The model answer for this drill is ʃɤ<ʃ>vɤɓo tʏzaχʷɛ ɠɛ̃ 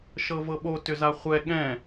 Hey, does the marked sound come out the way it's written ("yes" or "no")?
no